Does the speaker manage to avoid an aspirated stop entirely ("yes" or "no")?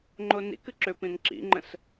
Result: yes